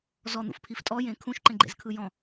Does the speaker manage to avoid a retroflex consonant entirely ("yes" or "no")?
yes